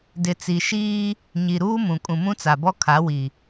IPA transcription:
d ɪ˨ t͡s i˨ ʃ iː˦ | ɲ i˨ ɾ uː˦ m ũ˨ kʼ ũ˨ m ũ˦ t͡s a˨ b ɔ˦ kʰ a˨˦ w i˨

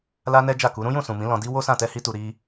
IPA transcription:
l a˦ n ɛ˦ d͡ʒ a˦˨ k u˨˦ ɾ ũ˦ j ũ˦˨ s ũ˨ m ĩ˨˦ l ɔ̃˧ d i˦ w o˦ s ã˦˨ t ɛ˧ h i˧ t u˨ ɾ i˧

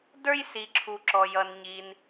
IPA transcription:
d ə˞˦ j s i˨ ǁʰ u˨ ǁ ɔ˨ j ʌ˨ n ɲ i˨ n

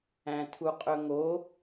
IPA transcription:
æ̃ tʰ u qʼ ɵ ŋ o

